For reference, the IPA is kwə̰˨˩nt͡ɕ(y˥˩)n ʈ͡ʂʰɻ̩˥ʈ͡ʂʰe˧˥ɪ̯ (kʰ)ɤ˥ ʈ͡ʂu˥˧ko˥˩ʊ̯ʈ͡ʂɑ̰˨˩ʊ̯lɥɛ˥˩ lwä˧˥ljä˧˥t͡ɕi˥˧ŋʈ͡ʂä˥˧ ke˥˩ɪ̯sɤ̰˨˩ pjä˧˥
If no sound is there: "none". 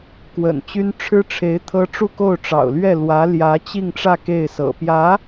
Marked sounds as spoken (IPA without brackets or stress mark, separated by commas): y˥, t̪ʰ